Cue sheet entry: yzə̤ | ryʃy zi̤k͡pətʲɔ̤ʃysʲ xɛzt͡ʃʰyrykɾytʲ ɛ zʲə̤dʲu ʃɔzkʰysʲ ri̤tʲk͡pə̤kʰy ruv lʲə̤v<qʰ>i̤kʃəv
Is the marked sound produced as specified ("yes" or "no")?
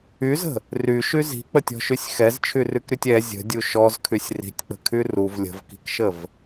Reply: no